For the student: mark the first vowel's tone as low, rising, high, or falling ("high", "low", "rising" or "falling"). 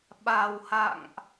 low